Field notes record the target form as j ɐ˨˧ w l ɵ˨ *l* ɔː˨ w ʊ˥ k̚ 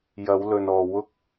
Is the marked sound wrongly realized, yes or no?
yes